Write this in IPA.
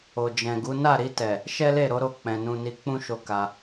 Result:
o˨ d͡ʒ ɛ̃˨ ɡ u˨˦ n a˦˨ ɾ i˧ t ɛ˨ | ʃ ɛ˦ l e˦˨ ɾ o˨˦ ɾ o˦˨ k͡p ɛ̃˨ n ũ˧ n i˧ k͡p ũ˦ ʃ o˧ k a˧

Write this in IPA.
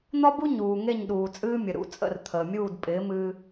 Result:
n̪ ɒ˥ b u˥ ɲ uː˩ ŋ e˥˩ ɲ ɗ uː˩ t͡sʼ ɨː˥ mʲ ə˩ ɾ ṵ˥˩ t͡sʼ ə̰˥˩ r t̪ʰ əː˩ mʲ uː˥˩ d pʼ ɪː˩˥ m ɨː˧

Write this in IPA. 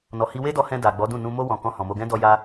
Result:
n ɔ˨ h i˧ w e˦ d ɔ˧ h ɛ̃˧ d a˨ ɡ͡b ɔ˨˦ d ũ˦˨ n ũ˧ m o˧ w ɔ̃˨ k ɔ̃˧ h ɔ̃˨ m o˧ ɡ ɛ̃˦ d ɔ˧ j a˧

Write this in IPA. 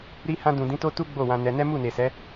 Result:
ɾ i˧ h ã˧ d ũ˨ d ĩ˨˦ t o˦ t u˦ ɡ͡b o˦˨ w ã˧ n ɛ˧ n ɛ˦ m u˦˨ n e˨ s ɛ˨˦

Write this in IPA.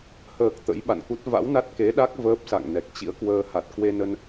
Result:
h əː˨˩ k̚ t̪ ə̰˧˥ j ɓ a̰˧˨ n k u˦˥ t̚ v a̰˧˥ w n a˦˥ t̚ k e˨˦ ɗ a˦˥ k̚ v əː˦˥ p̚ s a̰˧˨ ŋ n ɛ˨˩ k̚ t͡ɕ ḭ˧˥ ə̯ k w əː˧ h a˨˩ t̚ k w e˧ n ə˧ n

